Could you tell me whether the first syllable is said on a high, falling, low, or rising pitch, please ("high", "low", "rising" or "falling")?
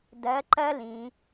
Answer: rising